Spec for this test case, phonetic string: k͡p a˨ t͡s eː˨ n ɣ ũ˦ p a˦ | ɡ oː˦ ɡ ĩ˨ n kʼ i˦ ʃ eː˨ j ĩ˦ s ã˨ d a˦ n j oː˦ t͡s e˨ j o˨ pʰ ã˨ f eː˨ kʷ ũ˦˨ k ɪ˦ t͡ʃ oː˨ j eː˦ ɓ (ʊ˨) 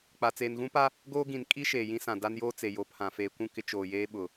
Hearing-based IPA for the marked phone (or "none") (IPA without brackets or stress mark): ʊ˨